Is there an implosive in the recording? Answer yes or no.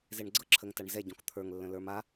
no